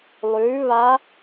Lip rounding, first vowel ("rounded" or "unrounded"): rounded